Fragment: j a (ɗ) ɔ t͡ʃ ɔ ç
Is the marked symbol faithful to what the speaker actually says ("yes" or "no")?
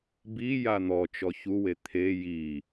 no